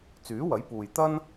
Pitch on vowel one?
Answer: rising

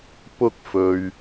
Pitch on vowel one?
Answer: high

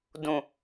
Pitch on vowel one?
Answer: low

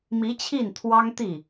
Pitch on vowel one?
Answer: rising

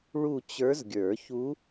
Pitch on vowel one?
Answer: falling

